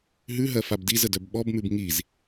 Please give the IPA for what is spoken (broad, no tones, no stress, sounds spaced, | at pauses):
ɦ ʉ ɦ ɜ f a b d i z ə d œ b ɓ ɔ b m ʉ b ŋ i z